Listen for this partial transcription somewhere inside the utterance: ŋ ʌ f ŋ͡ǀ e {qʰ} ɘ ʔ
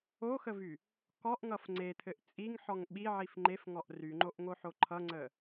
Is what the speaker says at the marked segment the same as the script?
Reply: no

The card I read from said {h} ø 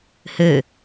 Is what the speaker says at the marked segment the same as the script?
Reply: yes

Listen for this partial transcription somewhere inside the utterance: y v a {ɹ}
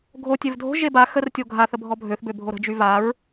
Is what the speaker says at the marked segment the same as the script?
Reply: yes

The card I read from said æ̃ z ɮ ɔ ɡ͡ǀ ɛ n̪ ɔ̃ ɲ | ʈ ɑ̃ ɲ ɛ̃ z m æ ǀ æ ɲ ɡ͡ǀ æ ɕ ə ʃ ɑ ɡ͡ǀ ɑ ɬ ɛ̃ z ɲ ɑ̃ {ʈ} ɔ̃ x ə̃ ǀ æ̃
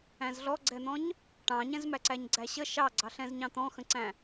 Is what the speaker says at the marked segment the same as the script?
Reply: no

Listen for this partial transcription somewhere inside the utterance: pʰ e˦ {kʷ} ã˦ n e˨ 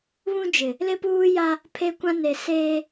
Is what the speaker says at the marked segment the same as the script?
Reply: yes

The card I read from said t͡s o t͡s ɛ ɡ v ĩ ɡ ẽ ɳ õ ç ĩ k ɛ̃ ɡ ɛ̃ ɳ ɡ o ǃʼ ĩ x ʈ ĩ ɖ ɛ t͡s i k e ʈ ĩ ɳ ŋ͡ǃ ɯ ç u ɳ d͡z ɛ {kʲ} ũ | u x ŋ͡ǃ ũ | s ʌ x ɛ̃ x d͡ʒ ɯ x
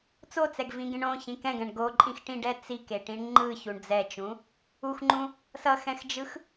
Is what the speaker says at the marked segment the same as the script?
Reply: no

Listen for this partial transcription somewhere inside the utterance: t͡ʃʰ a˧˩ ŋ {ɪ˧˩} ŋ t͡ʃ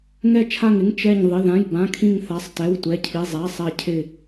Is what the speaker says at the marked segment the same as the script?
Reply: no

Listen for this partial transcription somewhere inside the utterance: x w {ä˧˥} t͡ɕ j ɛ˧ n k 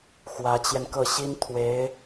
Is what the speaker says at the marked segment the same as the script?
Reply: yes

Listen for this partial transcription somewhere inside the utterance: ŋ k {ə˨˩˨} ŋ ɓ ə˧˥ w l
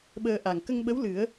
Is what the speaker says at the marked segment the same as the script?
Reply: no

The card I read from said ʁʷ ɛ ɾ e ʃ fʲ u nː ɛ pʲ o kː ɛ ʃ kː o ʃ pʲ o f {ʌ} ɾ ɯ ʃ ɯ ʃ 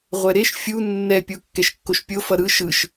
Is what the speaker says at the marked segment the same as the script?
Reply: yes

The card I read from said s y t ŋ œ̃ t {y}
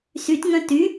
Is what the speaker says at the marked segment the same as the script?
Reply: yes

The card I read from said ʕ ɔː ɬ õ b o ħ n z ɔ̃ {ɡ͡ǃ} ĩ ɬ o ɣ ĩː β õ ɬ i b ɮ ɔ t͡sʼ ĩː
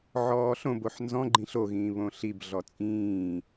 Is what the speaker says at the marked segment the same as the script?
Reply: yes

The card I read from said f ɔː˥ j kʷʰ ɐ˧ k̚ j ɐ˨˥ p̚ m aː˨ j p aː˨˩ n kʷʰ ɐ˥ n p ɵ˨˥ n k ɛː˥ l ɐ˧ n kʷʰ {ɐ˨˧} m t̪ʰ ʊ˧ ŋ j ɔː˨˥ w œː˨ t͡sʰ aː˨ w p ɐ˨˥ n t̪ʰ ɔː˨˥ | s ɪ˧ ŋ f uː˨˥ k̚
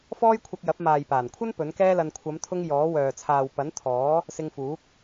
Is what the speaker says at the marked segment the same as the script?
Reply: yes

